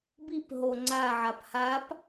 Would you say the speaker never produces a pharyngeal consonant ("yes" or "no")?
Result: no